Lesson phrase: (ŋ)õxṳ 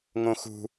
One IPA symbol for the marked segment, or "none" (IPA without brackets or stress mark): ŋ